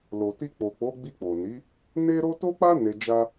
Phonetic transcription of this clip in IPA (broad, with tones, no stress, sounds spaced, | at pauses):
l o˨ t i˧ k͡p o˨ k͡p o˨˦ ɡ͡b i˧ k͡p o˨ n i˨˦ | n e˦ ɾ o˦ t o˦ k͡p a˦ n e˧ d͡ʒ a˦